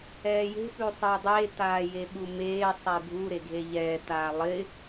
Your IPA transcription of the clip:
ɛː j e̤ p ʉ sˤ ɪː dˤ e t aː j e ɓ u m eː sˤ ɛ bʱ u ɾ e ɡʱ e ʎ ɛː t aː lˠ ɪː

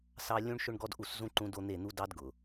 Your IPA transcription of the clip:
s ɑ˦ lʲ ũ˦ ɳ ʃ ʊ˦ ɳ ɡ ɔ˦ d ʔ u˦˨ s z ũ˦ ǃ ũ˦ d o˦ n̪ e˦˨ n̪ u˦ d ɑ˦ d ɡ ʊ˨

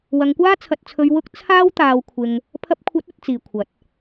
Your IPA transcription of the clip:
w ɐ˨˧ ŋ kʷ aː˥ t͡sʰ ɐ˧ t̚ t͡sʰ ɵ˧ ɥ w ʊ˥ k̚ t͡sʰ aː˥ w t̪ aː˧ w kʷʰ ɪ˧ ŋ | pʰ ɐ˧ p̚ kʷʰ ɐ˨˥ t̚ ɵ˨˥ t̚ t͡s iː˨ kʷʰ ɐ˨˥ t̚

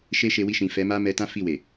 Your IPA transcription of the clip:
ʃ e˦ ʃ e˧ w i˧ ʃ ĩ˨ f ɛ˨˦ m a˦ m ɛ˧ t ã˦ f i˦˨ w e˨

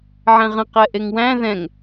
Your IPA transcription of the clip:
ʕ ɛ̃ ʁ ə̃ q ɛ ʔ e ŋ w æ̃ ð ɛ̃ ŋ

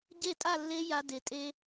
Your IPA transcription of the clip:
ɟ e˥˧ tʼ a˥˧ lː e˦˥ j a˦˥ d e˨˦ tʼ e˦˥

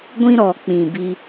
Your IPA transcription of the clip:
ɡʷ ĩ˦ ɾ ɔ˨ k͡p ĩ˨ b i˦

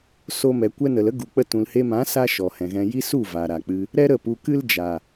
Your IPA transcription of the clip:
s o˧ m ɛ˨ kʷ ɛ˧ n ə˨ l ə˦ ɡ u˨ k͡p ə˧ t ũ˨ l h e˧ m ã˨˦ s a˦ ʃ ɔ˨ h ɛ̃˨ ɣ ɛ̃˧ j i˦ s u˦˨ v a˨ ɾ a˨ k͡p ɨ˧ | ɾ ɛ˦ ɾ ə˦˨ p u˧ k ɨ˦ l d͡ʒ a˨

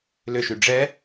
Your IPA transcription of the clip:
l ʏ ʃ y ɖ͡ʐ ɛ

